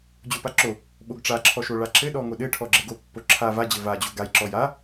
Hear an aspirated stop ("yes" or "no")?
yes